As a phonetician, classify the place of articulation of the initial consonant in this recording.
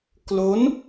velar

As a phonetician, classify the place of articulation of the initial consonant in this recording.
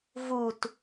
labial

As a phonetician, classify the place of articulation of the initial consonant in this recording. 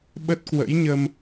labial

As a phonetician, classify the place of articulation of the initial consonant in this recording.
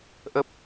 glottal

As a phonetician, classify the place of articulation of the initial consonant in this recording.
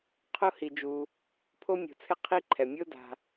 uvular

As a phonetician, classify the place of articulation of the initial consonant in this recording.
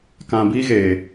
velar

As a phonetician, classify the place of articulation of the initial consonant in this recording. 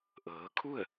glottal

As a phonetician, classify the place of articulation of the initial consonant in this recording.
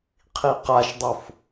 uvular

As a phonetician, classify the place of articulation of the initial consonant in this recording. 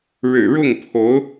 retroflex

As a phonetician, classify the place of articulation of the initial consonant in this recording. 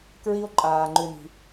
velar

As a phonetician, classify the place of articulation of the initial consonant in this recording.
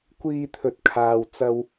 velar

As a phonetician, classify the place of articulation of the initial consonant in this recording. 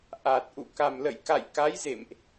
glottal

